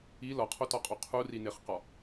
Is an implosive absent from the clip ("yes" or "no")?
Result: yes